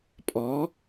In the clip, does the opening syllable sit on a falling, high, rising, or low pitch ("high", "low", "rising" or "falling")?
rising